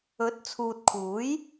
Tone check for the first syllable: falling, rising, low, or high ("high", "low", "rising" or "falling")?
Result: rising